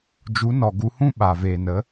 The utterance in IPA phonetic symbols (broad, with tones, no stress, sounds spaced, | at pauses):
d͡ʒ u˨˦ n ɔ˨ ɡ u˨˦ h ũ˦ ɓ a˨ v eː˨ n ə˨˦